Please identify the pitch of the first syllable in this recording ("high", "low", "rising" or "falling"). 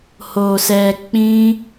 low